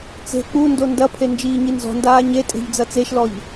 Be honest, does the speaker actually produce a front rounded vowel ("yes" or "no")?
no